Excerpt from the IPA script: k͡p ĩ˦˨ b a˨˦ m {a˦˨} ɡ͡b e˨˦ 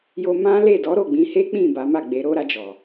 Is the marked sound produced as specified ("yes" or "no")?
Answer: yes